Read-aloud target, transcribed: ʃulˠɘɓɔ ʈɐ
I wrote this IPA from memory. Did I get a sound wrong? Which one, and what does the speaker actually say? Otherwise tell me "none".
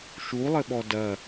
ʈ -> d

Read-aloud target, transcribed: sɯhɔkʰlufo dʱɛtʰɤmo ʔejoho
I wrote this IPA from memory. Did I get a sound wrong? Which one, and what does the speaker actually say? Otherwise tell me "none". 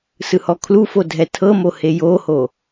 ʔ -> h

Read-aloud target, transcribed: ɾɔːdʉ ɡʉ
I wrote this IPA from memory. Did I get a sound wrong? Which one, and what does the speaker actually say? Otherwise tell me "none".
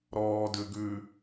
none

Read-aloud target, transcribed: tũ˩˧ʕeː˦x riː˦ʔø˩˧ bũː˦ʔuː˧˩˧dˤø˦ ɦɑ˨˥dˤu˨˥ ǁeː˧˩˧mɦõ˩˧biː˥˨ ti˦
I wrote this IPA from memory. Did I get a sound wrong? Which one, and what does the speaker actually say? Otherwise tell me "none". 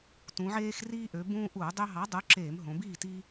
none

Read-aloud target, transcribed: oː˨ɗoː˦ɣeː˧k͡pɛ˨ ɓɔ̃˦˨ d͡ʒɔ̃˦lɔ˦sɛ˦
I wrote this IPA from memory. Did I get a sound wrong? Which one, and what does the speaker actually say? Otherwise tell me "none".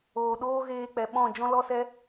none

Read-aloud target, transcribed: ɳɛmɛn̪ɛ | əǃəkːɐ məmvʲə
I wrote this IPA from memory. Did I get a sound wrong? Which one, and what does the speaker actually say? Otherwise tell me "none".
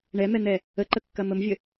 none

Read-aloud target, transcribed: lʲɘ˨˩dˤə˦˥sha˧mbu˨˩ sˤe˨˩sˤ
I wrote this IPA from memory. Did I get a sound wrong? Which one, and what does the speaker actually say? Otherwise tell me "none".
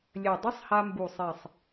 s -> sˤ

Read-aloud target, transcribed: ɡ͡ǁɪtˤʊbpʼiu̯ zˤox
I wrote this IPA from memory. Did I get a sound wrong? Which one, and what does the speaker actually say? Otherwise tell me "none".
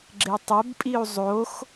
none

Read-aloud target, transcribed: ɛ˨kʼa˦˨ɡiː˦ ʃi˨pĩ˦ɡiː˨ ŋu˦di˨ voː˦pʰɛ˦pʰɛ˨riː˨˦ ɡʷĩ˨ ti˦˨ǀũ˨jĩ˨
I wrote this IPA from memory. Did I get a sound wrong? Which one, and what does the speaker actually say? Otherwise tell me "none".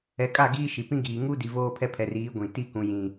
ǀ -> k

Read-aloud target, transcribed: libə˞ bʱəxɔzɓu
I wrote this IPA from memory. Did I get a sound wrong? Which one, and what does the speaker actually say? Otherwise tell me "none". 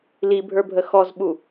b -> bʱ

